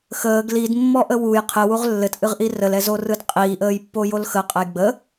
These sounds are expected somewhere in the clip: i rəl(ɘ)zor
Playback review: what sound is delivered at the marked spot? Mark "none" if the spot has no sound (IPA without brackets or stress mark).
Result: ɛ